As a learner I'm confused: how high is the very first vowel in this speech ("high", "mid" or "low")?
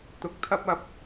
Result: high